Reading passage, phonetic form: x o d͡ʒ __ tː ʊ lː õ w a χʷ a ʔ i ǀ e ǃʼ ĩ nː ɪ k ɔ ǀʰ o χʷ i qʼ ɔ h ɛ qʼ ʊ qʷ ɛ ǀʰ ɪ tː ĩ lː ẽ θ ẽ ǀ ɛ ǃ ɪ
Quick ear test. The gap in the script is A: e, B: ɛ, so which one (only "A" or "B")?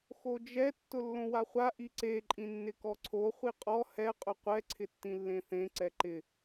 B